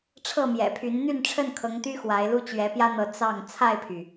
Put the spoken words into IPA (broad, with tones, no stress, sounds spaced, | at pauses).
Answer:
ʈ͡ʂʰ ɤ˥˨ m j ɛ̰˨˩ pʰ y˨˦ n n̪ y˥˨ n ʈ͡ʂʰ ə˥˨ n kʰ ɤ˨˦ ŋ t̪ y˦ x w a˨˦ ɪ̯ l u˦ t͡ɕ ɥ ɛ˨˦ p j ä˦ n̪ ɤ˨˦ t͡s ɑ˥˨ ŋ t͡sʰ a˥˨ ɪ̯ pʰ y˩